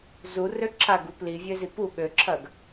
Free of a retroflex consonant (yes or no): yes